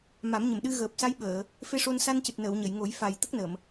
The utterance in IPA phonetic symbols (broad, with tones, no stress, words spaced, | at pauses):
ma˨˩˦mɲə˨˩mɗɨ˧ ɣəː˨˩p̚sa˧˥jɓəː˨˩˨ | fe˧ʂo˧n sa˧ncɨ˨˩t̚nəː˨˩˨w ɲə˨˩˨jŋo˨˩˦jfa˨˩j t̪ə˦˥k̚nəː˨˩˨m